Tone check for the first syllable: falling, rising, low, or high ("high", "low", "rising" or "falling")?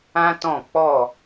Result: high